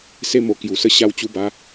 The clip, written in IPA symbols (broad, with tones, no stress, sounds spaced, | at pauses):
s e˧ m o˨˩ k j u˨˩ s ə˧ ɕ a˧ w t͡ɕ u˧ b a˧